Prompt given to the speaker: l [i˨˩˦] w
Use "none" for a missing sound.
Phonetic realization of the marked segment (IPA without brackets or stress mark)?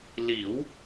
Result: i˨˩˦